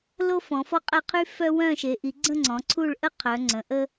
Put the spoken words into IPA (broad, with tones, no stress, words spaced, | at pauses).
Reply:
lo˥fɔ̃˨˦fɔ˥ qʼɛ˥˧qʰy˥fœ˥ wœ̃˥˧ʃe˨˦ʔi˨˦ ɡ͡ǀə̃˥˧ ŋ͡ǀɔ̃˨˦ǀʰu˥˧ɭʔə˥ qʰœ˨˦ŋ͡ǀə̃˨˦ʔə˥